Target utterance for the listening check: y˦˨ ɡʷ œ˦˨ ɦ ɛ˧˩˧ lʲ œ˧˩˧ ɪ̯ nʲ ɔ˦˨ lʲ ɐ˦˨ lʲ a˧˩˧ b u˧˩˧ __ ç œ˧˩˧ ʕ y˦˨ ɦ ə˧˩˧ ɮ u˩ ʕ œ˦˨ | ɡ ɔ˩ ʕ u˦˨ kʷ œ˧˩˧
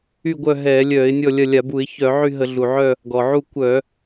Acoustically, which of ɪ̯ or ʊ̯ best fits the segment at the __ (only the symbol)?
ɪ̯